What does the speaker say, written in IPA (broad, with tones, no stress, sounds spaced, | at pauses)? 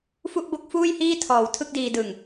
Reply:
f u˥˩ ʔ b o˥˩ k̚ f uː˥˩ j h iː˥˩ tʰ ɔː˨˩ w tʰ ɯ˥˩ k̚ d iː˧ d ɯ˨˩ ŋ